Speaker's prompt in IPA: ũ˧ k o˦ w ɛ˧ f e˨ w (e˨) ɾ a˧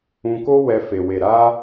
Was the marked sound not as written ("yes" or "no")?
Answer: no